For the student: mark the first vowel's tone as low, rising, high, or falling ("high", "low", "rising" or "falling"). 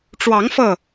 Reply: rising